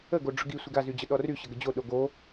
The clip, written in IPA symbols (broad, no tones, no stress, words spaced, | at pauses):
əɡo ɖ͡ʐʊɡi sʷiɡazyd͡ʑə ɗɔry ɕəɡəd͡ʑo ɗoɡo